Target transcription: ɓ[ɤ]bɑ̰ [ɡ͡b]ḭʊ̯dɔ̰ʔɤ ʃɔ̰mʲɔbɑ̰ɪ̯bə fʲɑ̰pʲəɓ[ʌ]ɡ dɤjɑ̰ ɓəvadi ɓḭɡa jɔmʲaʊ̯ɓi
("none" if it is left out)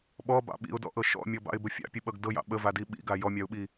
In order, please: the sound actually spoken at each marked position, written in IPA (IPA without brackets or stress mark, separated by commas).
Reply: ɔ, ɓ, ʌ